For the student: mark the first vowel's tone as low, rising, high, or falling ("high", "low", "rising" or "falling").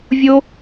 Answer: high